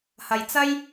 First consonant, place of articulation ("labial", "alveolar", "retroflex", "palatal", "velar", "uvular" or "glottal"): glottal